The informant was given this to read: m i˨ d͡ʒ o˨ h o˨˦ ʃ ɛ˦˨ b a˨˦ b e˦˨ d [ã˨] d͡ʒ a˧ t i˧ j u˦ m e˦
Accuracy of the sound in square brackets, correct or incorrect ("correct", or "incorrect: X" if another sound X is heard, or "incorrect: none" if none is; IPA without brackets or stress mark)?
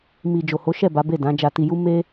incorrect: ã˨˦